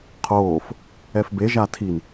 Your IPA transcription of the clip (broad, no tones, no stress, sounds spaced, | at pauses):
qʰ oː f | ɛ f b e ʒ a tʰ i n